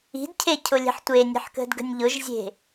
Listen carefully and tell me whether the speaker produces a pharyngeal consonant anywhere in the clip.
yes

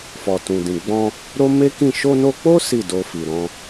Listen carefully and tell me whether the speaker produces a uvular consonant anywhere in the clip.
no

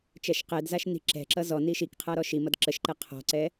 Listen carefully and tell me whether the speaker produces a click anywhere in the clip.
yes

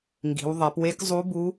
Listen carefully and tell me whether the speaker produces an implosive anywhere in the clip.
no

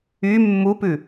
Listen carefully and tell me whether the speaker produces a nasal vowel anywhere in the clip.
no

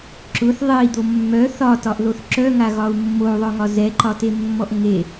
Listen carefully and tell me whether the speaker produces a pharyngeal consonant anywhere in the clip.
no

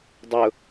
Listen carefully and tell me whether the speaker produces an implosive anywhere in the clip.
no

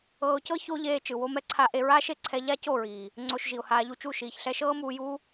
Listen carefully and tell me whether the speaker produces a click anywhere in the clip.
yes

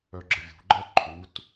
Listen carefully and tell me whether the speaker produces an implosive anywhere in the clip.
no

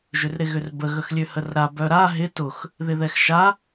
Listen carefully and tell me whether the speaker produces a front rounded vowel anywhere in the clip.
yes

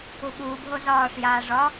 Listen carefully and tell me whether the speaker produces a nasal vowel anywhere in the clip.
no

